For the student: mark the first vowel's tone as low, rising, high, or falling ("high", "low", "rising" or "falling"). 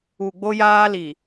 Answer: low